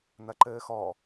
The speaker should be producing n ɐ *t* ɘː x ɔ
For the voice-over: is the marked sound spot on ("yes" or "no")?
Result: no